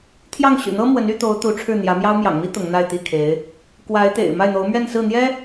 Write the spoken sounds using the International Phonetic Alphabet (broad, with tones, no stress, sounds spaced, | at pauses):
t̪ʰ j ɑ˥˩ ŋ ɕ y̰˨˩ n̪ ɤ˥ m w ə˧˥ n y˧˥ t̪ o˧˥ ʊ̯ t̪ u˧˥ ʈ͡ʂʰ ɻ̩˥˩ n̪ j ä˧˥ m j ɑ˥ ʊ̯ m j ɑ̰˨˩ ŋ m i˥ t̪ ʊ˧˥ ŋ n̪ a˥˧ ɪ̯ t̪ i˥˩ kʰ e˧˥ ɪ̯ | k w a˧˥ ɪ̯ t̪ ḛ˨˩ ɪ̯ m a˥˩ ɪ̯ n̪ o˧˥ ʊ̯ m ɥ ɛ˥˧ n s ɹ̩˥˩ n̪ j ɛ˥